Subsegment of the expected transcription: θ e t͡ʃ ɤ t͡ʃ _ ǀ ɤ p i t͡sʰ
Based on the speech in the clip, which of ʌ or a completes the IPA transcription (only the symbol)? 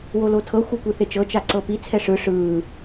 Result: a